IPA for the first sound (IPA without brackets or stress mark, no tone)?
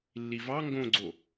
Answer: lː